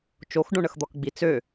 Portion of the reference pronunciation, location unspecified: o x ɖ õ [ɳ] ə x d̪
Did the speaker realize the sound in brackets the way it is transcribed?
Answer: yes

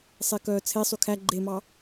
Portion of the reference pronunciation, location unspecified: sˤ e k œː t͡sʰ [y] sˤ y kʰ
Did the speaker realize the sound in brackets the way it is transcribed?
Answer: no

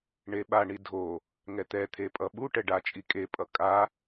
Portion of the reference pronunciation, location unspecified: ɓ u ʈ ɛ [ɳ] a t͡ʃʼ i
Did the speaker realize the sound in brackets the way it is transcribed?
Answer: no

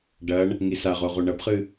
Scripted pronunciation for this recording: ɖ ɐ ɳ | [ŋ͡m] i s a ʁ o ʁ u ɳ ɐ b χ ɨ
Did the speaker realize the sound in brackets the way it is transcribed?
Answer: no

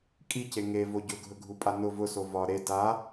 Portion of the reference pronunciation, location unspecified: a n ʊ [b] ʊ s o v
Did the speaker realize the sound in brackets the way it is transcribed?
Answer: no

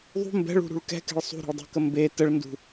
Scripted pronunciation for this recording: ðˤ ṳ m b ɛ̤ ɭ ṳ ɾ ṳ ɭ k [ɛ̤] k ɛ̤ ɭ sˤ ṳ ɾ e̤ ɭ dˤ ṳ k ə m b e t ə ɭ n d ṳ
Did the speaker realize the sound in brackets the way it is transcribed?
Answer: yes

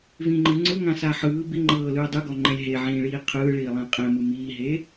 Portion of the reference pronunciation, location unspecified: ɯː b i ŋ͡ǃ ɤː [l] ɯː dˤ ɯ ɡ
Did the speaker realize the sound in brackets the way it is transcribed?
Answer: yes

